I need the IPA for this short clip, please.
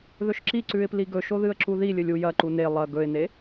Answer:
ð ɵ ʃ ǁ i ǀ ʉ ɪ̯ p l i ɡ ɵ ʃ o ð ɨ ə̯ ǁ u ð i lʲ ɵ lʲ u j ɐ ǃ u n e lˠ ɐ ɡ ɵ ɪ̯ n e

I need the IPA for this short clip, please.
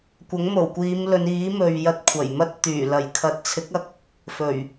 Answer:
kʷ ɐ˨˥ ŋ m o˨˩ w kʷ iː˨˧ m l ɵ˨˧ n iː˨˥ m ɵ˨ ɥ j ɐ˧ t̚ kʷʰ ɐ˨˩ j m ɐ˥ t̚ t̪ yː˨˩ l ɐ˨˩ j kʰ ɐ˨ t̚ t͡sʰ ɪ˨˥ k̚ ɐ˧ k̚ | f ɵ˨˩ ɥ

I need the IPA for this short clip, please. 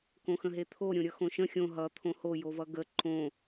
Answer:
k õ x ə̃ ɦ e t̪ʰ o ɾʲ õ ɾʲ ʌ x õ ʃ ə̃ xʲ õ ɦ ʌ t̪ʰ õ h o j o v ʌ ɡ ə ǃ õ

